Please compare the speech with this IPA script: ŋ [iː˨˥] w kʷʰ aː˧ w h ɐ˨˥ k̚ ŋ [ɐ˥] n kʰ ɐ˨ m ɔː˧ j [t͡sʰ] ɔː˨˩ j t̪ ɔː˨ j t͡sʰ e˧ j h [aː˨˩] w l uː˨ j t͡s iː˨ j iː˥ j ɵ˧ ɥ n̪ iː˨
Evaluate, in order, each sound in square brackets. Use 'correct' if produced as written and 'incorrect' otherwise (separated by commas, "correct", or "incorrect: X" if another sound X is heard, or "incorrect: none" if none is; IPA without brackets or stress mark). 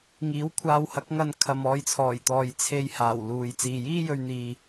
correct, incorrect: ɐ˧, correct, correct